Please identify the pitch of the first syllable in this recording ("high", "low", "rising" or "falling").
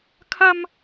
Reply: high